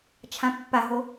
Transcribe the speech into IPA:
t͡ʃʰ ã pː a ɦ o

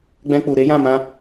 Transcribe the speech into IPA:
ɡ͡b ɛ̃˧ k͡p u˨ ɾ e˨˦ j ã˦˨ m ã˧

